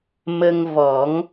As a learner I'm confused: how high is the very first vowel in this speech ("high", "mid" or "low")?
mid